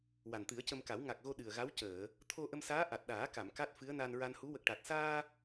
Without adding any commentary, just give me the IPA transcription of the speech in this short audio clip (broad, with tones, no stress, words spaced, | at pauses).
wa˨˩nt̪ɨ˨˩˦ə̯cə˧mka˨˩˦w ŋa˨˩k̚ɣo˧ ɗɨ˨˩ə̯ɣa˧˥w cəː˨˩˨ | t̪ʰo˧ʔə˧msaː˧˥ ʔa˨˩t̚ɗaː˨˩˦ka˨˩˨m ka˦˥t̚fɨ˧˥ə̯na˧n ɹa˧nhu˧˥ wə˨˩k̚ʈa˨˩t̚saː˧